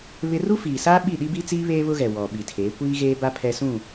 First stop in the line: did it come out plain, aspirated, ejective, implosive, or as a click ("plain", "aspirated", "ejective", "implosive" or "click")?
implosive